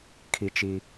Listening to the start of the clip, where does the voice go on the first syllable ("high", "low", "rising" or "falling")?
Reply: low